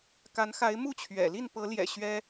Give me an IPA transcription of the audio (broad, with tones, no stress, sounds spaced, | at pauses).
k a˨˦ n x a˨˦ ɪ̯ m u˥˨ t͡ɕʰ ɥ ɛ̰˨˩ l i˥˨ n p ɤ˨˦ l j ɛ̰˨˩ ɕ ɥ ɛ˦